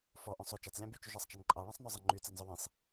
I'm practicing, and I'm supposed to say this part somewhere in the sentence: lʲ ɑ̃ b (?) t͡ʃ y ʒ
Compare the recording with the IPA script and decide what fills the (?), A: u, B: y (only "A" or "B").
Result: B